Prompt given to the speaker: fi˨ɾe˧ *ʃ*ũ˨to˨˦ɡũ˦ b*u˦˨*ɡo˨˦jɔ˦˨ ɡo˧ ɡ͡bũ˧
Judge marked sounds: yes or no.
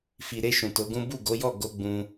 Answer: yes, yes

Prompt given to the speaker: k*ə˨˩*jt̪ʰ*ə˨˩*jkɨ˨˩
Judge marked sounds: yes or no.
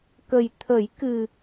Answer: yes, no

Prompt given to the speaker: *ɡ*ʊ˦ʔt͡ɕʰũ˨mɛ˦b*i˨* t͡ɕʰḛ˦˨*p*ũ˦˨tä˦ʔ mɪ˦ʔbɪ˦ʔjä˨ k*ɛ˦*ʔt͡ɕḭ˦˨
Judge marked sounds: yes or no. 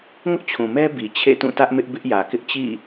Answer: no, yes, no, no

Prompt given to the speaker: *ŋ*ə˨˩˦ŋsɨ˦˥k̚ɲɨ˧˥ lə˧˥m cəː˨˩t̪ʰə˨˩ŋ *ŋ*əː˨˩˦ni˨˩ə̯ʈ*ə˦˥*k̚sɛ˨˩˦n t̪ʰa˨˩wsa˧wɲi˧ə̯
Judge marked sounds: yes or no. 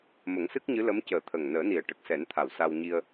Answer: no, no, no

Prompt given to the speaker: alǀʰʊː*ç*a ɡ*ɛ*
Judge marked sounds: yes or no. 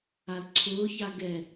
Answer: yes, yes

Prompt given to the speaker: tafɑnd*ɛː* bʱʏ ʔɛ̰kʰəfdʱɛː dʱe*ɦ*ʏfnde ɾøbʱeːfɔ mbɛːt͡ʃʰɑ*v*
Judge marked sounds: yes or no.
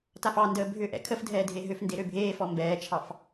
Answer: no, yes, no

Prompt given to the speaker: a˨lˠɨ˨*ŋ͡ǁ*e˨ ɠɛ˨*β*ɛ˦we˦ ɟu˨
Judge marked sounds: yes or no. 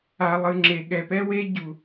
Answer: yes, no

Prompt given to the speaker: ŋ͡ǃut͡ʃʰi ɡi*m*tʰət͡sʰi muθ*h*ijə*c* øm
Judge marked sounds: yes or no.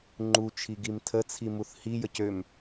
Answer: yes, yes, yes

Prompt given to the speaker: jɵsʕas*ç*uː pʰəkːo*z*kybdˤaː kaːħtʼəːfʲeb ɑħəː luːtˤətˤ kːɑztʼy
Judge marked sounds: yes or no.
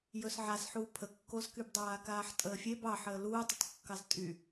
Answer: no, yes

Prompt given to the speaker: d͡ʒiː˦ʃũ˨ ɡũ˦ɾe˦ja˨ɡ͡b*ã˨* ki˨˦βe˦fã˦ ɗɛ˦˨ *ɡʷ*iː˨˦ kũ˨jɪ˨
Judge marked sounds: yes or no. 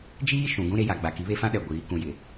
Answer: no, yes

